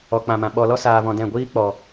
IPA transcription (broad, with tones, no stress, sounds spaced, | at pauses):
ɔ˨ k͡p ã˨ m ã˨ ɓ ɔ˨ l ɔ˦ s aː˧ v ɔ̃˧ d ɛ̃˦˨ ɡʷ iː˦ k͡p ɔ˨